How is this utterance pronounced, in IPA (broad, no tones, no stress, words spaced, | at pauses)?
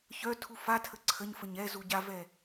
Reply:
çœ tʰufatʰə ǀʰəɲfəɲ ɛ zuɟavɛ